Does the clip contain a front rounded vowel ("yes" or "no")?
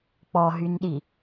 yes